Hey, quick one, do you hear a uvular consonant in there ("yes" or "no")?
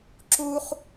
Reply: yes